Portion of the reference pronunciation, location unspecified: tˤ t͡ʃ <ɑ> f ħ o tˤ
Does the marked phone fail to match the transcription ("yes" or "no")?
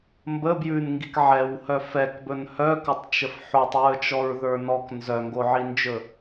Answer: yes